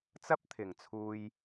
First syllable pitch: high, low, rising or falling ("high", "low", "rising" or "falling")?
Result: high